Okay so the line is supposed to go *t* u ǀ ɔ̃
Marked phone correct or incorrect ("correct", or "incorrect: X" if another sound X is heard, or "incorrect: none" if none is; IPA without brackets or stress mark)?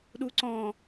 incorrect: ɗ